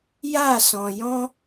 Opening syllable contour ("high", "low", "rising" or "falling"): falling